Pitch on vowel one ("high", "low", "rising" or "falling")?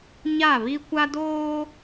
falling